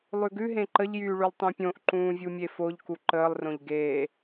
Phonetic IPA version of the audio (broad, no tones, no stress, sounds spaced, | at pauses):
lˠ ʉ ɡ ʉ ɦ ẽ ǃ ə ʎ j yː ɭ y lˠ tˤ ũ pʲ õ ʔ ǃ ũː vʲ u mʲ e f o ʎ k u ǃ əː lˠ r õ ʎ ɡ eː